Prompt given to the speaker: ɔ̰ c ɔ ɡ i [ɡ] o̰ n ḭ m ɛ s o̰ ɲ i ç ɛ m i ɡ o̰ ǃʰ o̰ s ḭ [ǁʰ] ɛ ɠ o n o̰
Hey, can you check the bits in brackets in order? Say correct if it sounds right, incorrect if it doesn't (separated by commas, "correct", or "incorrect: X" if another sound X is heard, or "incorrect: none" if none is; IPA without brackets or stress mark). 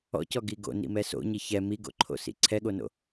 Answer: correct, incorrect: ǀʰ